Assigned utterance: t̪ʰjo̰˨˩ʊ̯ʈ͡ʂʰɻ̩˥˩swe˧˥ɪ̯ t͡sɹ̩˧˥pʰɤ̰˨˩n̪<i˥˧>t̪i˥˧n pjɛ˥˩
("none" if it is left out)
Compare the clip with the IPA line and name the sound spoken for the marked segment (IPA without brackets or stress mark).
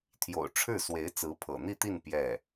i˥˧